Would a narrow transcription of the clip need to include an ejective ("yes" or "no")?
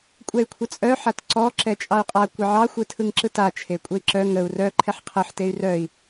yes